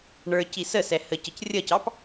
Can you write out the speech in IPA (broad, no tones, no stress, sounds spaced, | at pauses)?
ɳ ə˞ c i s ə s ɛ h ə c ə c rʲ ʌ c ɑ p